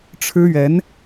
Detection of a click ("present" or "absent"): absent